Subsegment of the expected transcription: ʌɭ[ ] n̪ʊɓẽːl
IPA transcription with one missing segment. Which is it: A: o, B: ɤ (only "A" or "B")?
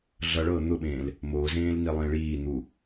B